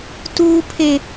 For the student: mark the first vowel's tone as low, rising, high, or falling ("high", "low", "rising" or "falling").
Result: high